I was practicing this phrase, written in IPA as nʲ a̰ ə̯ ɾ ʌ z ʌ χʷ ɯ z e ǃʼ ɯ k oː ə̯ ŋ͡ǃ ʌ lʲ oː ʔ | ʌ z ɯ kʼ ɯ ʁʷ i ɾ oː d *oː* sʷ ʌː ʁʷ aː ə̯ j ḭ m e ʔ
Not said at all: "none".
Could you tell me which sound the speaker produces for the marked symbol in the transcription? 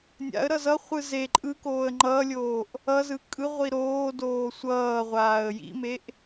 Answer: oː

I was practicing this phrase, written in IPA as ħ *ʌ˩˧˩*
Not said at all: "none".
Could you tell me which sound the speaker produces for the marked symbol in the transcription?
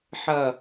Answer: ʌ˧˩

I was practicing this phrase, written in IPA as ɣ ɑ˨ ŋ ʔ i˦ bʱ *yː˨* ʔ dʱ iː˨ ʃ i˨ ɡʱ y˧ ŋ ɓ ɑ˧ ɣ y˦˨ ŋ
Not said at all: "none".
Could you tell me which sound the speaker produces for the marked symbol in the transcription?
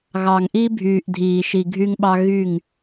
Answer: yː˨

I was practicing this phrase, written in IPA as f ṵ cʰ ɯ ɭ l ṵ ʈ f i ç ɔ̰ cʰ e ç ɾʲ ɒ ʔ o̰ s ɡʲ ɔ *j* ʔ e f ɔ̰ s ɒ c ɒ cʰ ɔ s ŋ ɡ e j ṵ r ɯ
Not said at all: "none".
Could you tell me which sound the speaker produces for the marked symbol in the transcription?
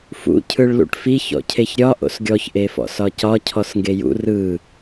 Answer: ç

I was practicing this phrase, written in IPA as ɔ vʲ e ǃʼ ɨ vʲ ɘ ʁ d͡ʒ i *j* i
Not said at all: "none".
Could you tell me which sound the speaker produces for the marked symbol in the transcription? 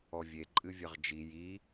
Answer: j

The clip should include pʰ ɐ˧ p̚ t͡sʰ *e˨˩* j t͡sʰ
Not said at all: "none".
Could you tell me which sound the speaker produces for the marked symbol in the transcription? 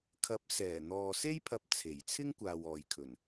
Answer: e˨˩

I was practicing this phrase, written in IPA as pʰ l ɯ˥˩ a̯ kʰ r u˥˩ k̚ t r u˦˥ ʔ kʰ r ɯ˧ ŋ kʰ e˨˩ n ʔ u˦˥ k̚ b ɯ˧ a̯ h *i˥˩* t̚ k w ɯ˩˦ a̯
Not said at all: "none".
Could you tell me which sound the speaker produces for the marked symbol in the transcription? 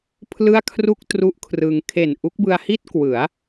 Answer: i˥˩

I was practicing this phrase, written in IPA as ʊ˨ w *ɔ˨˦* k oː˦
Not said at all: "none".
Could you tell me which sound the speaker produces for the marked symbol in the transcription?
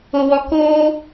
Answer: ɔ˨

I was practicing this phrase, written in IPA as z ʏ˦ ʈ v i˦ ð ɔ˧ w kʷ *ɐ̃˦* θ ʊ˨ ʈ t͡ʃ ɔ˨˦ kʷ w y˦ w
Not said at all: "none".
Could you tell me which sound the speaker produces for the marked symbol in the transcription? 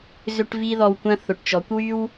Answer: ɐ̃˦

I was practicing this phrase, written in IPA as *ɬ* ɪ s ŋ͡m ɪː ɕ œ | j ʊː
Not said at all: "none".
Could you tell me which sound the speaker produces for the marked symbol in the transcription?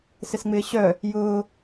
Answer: s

